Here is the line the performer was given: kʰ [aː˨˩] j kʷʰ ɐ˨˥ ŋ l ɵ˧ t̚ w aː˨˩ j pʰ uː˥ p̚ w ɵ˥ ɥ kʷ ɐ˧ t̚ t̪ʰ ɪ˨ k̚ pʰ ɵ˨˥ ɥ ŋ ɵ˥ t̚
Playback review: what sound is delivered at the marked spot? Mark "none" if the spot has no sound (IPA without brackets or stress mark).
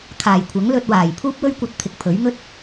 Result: aː˨˩